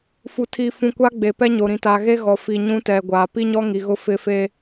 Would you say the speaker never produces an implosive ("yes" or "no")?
yes